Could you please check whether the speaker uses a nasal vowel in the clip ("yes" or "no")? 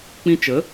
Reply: yes